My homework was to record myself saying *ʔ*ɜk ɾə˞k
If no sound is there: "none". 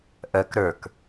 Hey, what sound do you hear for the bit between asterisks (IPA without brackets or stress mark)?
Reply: ʔ